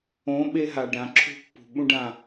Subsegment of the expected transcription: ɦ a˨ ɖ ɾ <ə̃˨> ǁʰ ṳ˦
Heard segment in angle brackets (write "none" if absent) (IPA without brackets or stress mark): ã˨